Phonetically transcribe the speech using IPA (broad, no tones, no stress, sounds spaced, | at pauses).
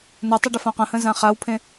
n ə tˤ ə ɖ ə f ã q ə̃ h ə̃ z ã χ a w pʰ ẽ